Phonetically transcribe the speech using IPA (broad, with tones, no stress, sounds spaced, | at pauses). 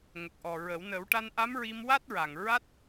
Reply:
ŋ ə˨˩ k̚ ʔ ɔ˨˩ ɹ ə˨˩˦ w n ə˨˩˦ w ʈ a˧ n ʔ a˧˥ m ɹ i˧ m w a˦˥ t̚ ɹ a˨˩ ŋ ɹ a˦˥ t̚